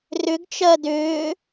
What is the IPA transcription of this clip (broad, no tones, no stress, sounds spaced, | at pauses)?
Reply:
r ʏ ɡ t͡ʃ ɜ d ʏː